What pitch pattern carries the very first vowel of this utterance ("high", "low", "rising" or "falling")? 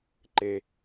low